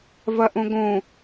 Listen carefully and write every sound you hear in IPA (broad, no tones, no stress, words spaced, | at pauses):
vɐʔõɡõ